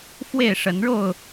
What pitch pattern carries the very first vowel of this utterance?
falling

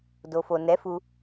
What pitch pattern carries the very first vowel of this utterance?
low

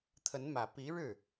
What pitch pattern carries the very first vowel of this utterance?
rising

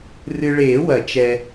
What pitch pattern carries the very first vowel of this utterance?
low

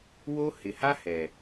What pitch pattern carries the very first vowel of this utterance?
high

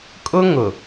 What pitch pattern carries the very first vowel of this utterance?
high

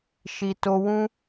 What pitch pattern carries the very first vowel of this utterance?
low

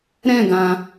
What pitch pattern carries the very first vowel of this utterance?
falling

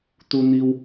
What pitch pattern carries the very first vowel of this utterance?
high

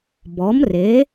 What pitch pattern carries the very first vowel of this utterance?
rising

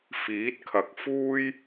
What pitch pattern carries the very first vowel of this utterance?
rising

